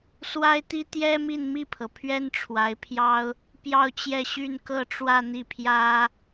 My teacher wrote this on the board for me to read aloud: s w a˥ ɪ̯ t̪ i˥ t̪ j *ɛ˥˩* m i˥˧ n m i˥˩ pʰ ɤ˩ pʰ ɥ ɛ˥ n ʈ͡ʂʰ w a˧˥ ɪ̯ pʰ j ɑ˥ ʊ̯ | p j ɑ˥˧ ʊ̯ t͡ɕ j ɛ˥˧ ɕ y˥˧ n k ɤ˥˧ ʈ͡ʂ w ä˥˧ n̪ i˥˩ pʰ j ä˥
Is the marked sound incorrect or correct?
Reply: incorrect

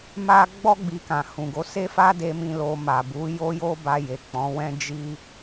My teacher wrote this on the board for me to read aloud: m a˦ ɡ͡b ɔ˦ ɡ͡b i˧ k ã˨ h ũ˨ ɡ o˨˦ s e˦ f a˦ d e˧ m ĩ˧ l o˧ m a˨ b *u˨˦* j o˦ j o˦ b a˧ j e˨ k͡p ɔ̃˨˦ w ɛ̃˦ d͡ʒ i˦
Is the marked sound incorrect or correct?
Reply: correct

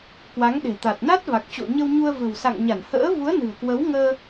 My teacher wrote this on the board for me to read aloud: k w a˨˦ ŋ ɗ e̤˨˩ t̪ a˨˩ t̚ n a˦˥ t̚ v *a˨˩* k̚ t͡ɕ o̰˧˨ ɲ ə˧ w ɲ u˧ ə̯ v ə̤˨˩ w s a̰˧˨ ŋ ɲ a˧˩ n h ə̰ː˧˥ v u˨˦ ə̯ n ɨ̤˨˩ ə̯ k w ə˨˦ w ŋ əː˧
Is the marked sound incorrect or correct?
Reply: correct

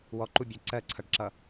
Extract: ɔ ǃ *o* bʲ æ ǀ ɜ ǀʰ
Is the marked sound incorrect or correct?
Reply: incorrect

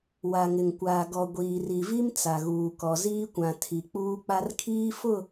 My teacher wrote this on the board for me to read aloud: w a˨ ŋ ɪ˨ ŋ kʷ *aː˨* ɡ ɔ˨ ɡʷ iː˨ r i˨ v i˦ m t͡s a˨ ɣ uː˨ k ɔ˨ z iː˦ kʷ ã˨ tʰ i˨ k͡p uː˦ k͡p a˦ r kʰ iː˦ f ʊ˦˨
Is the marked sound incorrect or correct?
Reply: correct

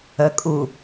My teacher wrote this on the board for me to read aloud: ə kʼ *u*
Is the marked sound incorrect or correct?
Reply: correct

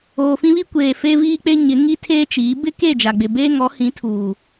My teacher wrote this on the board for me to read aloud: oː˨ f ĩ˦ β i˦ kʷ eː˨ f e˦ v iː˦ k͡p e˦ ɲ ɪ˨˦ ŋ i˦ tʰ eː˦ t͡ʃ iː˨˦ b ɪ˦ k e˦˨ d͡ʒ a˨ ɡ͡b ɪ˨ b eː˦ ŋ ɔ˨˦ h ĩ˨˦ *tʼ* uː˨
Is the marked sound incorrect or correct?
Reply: incorrect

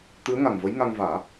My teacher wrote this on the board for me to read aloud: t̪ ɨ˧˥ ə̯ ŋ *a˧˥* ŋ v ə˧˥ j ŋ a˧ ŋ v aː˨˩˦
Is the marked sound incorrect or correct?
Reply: incorrect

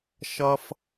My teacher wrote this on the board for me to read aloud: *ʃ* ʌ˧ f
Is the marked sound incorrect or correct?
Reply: correct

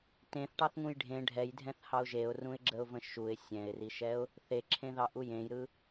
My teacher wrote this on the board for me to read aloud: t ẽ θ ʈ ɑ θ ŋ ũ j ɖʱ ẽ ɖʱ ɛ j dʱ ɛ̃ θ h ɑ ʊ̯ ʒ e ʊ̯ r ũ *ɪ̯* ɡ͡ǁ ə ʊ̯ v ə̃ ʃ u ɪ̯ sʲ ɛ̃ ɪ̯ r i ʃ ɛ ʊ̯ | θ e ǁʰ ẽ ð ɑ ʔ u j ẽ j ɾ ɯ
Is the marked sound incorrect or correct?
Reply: correct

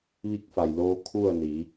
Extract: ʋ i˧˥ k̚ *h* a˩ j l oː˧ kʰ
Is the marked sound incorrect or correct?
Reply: incorrect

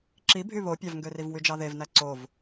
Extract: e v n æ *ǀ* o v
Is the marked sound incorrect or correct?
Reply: correct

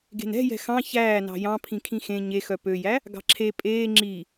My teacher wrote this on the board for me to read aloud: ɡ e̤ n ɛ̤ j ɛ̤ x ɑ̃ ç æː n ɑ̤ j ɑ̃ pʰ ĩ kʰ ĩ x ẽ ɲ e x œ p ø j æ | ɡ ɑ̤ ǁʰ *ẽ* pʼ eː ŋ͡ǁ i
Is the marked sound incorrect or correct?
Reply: incorrect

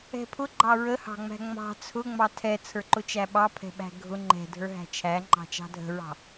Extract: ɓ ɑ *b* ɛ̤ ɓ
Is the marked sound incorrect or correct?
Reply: incorrect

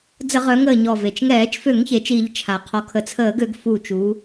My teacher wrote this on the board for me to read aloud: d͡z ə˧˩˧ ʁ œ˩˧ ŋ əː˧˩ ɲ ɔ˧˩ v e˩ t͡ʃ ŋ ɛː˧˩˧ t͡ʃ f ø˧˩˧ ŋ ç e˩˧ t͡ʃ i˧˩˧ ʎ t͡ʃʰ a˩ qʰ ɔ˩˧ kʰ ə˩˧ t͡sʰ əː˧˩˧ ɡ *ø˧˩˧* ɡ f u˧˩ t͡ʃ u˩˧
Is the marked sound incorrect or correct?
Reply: correct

